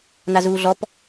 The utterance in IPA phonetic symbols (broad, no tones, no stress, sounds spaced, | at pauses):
n a z uː ɮ ɔ p